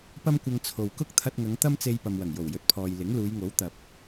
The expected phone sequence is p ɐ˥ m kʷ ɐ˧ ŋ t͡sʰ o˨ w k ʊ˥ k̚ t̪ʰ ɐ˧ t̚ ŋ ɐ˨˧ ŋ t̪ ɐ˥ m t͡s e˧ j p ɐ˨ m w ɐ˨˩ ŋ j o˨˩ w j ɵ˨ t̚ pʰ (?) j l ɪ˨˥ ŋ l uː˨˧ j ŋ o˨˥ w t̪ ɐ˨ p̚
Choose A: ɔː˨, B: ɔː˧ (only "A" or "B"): A